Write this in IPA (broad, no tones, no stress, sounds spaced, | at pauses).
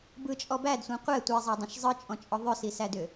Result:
b ɯ t͡ʃʼ ɔ b æ d sʷ ɛ̃ qʷ ɛ tʷ i zˤ æ dˤ ɛ̃ ʃ zˤ ɯ t͡ʃʼ ɔ̃ t͡ʃʼ ɔ ðˤ ʏ s i s æ d ʏ